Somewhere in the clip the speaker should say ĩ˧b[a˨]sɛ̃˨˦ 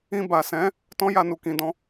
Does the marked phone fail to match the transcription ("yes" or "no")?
no